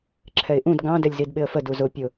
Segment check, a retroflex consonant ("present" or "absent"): absent